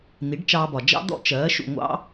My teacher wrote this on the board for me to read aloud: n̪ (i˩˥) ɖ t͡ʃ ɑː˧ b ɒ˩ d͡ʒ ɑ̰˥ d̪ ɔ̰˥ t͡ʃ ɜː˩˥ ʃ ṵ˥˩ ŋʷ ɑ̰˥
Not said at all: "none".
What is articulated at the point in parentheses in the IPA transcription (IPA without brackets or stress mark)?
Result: i˩˥